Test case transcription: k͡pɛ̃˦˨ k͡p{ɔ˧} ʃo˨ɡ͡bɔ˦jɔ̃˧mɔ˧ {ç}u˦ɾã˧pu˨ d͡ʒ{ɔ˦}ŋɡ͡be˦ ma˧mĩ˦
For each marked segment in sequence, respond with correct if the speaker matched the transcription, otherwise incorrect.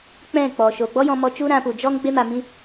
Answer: incorrect, incorrect, correct

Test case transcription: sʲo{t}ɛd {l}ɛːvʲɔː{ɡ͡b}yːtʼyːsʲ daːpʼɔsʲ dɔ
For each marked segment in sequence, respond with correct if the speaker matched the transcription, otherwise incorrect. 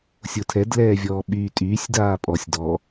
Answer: incorrect, correct, incorrect

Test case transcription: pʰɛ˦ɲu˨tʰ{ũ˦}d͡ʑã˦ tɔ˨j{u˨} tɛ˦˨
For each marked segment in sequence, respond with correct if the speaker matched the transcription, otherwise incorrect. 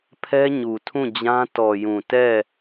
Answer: incorrect, incorrect

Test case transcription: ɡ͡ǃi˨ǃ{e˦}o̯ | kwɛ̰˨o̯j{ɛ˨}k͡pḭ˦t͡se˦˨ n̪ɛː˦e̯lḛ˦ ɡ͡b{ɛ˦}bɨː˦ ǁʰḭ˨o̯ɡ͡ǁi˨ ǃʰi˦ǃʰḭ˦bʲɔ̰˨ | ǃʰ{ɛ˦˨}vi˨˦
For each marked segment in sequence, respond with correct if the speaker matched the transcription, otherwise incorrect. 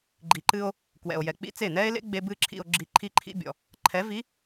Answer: incorrect, correct, incorrect, incorrect

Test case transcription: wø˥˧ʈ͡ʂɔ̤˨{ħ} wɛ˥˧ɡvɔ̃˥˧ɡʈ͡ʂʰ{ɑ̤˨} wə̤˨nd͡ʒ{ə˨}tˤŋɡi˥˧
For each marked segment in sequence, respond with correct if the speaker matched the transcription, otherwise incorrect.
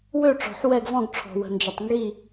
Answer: correct, incorrect, correct

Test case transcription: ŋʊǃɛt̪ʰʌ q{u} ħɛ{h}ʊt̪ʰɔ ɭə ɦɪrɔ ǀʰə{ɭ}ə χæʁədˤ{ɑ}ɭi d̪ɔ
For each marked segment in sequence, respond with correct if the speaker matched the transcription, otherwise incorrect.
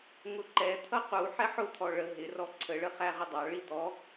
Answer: correct, incorrect, correct, correct

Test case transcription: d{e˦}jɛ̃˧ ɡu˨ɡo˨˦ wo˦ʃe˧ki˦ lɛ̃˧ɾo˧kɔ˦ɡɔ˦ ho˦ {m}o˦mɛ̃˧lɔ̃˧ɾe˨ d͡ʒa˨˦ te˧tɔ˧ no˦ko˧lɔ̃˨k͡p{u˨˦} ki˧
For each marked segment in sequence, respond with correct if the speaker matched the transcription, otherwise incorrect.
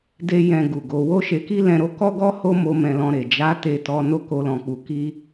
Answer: correct, correct, incorrect

